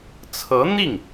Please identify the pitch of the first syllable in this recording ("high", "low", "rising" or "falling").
rising